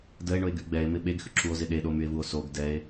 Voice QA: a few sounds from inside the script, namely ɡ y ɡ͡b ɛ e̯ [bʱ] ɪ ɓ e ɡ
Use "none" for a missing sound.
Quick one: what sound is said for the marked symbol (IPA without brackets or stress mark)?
m